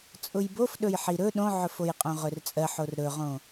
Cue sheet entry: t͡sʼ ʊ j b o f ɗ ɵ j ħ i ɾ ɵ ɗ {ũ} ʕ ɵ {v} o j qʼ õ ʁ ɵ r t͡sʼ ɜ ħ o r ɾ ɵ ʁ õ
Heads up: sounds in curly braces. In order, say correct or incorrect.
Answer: incorrect: õ, incorrect: f

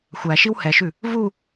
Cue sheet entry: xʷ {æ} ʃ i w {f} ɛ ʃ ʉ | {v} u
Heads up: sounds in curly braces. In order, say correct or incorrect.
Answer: correct, incorrect: h, correct

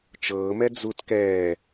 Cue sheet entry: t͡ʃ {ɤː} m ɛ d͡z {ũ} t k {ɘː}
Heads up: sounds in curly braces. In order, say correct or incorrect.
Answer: correct, incorrect: u, incorrect: ɛː

